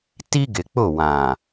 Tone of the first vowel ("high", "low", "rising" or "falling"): high